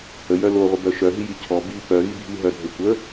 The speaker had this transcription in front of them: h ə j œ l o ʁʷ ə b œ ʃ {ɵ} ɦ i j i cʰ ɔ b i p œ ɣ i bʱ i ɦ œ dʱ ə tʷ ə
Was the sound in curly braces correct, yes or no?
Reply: no